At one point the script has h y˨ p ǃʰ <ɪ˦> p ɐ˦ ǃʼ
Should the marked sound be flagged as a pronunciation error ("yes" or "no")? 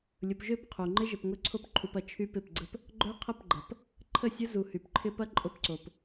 no